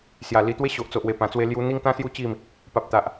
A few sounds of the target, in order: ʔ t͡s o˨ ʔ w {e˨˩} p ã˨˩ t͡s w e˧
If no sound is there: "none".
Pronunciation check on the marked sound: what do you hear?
e˨˩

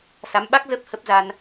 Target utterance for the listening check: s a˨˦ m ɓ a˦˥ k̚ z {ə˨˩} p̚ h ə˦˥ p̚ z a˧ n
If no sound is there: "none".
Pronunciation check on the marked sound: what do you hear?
ə˦˥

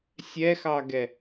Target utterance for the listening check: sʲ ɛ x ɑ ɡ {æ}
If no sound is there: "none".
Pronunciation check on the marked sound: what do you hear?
ɛ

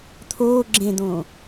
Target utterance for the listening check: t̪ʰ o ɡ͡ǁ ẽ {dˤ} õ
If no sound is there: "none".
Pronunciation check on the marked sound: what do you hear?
d̪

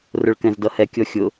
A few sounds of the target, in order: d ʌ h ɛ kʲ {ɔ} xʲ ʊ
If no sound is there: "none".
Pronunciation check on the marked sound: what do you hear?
ɔ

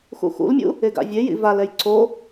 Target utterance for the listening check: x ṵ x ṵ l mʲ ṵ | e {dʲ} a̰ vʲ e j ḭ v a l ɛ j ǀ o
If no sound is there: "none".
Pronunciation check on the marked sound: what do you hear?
ɡ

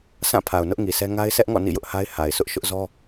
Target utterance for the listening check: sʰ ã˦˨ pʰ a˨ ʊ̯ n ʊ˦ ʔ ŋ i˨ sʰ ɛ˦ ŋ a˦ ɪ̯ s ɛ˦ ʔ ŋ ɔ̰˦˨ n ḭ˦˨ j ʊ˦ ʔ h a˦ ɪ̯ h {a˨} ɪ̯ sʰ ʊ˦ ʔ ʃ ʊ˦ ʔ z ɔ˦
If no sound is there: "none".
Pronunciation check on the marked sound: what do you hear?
a˨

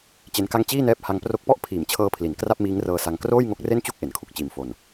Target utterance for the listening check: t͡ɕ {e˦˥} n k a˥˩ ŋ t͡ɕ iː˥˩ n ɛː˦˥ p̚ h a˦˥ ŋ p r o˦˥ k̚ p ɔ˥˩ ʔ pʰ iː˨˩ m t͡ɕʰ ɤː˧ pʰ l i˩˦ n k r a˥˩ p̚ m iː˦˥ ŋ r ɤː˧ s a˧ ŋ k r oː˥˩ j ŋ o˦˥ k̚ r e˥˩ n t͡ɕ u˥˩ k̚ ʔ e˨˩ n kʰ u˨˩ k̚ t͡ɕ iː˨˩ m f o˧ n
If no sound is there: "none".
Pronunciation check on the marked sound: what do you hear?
e˦˥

